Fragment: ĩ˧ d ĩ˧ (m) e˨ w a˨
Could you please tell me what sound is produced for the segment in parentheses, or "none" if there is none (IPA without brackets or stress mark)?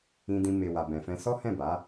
m